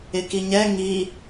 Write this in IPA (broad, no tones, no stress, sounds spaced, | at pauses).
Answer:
ɪ k i ɲ ɛ ŋ i